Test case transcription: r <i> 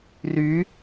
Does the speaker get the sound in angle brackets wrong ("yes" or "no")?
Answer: yes